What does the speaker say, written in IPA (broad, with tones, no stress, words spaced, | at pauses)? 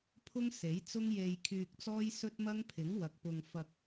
pʰʊ˥ŋse˨˥j t͡sʊ˥ŋje˧jkʰyː˧k̚t͡sɔː˥j sɵ˥t̚mɐ˥ŋ pʰɪ˨˥ŋwɐ˨k̚ pʊ˧ŋfɐ˧k̚